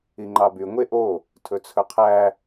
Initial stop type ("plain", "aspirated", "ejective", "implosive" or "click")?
click